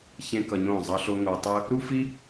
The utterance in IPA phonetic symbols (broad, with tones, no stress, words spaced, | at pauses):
çẽ˦kʌ˧ɲõ˦˨ zˤʌ˧ɬo˧ ŋo˧tˤɯ˦ | ɾu˦fi˦